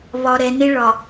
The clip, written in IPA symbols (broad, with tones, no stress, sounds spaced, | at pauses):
β ɒ˨ ɾ ɛ˨ n e˦ ɭ ɒ˨